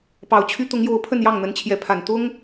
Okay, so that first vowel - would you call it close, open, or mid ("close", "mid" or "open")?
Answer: open